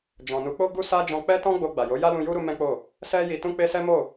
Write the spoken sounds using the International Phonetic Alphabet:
d͡ʒ ɔ̃˨ n u˨˦ k͡p o˦ ɡ u˦ s a˦ d͡ʒ ɔ̃˧ k͡p ɛ˦ t ɔ̃˦ ɡ͡b o˧ ɡ͡b a˨ j o˨˦ j a˦ l ũ˧ j u˦ ɾ u˦ m ɛ̃˦ k͡p o˦˨ | s ɛ˦ j i˧ t ũ˧ k͡p e˧ s ɛ˦ m o˦˨

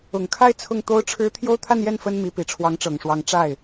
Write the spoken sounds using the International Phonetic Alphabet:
ʊ˨˩ ŋ kʰ a˥˧ ɪ̯ t͡sʰ ʊ˥˩ ŋ t̪ o˥ ʊ̯ ʈ͡ʂʰ ɻ̩˥ t̪ʰ j o˥ ʊ̯ t̪ʰ a˥˧ n j ɛ˥˩ n f ə˥ n m i˧˥ p i˨˩ ʈ͡ʂʰ w ɑ˧˥ ŋ ʈ͡ʂ ɤ˨˩ ŋ ʂ w ɑ˧˥ ŋ ʈ͡ʂ a˥˩ ɪ̯

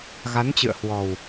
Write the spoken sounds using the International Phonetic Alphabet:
ɣ a˨˦ n t͡ɕ ɨ̰˧˨ ə̯ h w ɔ˨˩ w

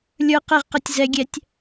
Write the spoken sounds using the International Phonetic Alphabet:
lʲ ə˞ q ɛ ʁ q ɛ tʲ z ɛ ɡʲ ɛ tʲ

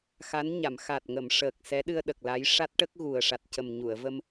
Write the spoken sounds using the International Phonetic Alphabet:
x a˧˥ n ɲ a˨˩˨ m x a˨˩ t̚ ŋ ə˨˩˨ m ʂ əː˨˩ k̚ s ɛ˧˥ ɗ ɨ˧ ə̯ ɗ ə˨˩ k̚ l a˧˥ j ʂ a˦˥ t̚ ʈ ə˦˥ k̚ ɣ u˨˩ ə̯ ʂ a˨˩ t̚ c ə˨˩ m ɲ u˨˩˨ ə̯ v ə˧ m

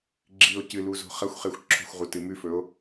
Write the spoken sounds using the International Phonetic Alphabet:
ɡ͡ǁ i o̯ c ɨ l u z o̤ χ ɐ xʷ χ e xʷ ǁʰ o̤ xʷ ʁ u t ɨ m ʉ f ɵ o̯

